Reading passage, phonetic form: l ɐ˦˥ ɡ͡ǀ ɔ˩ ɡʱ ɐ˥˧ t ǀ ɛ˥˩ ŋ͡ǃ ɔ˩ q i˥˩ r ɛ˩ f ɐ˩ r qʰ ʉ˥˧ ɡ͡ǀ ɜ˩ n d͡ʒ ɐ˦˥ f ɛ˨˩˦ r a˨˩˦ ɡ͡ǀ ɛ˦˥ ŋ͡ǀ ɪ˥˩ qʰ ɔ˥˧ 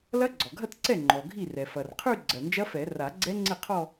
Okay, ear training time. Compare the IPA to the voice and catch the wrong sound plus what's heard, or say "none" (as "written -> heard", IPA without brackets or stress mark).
q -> ɡʱ